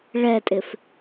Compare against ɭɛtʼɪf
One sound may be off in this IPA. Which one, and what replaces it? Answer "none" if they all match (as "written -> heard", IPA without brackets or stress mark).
none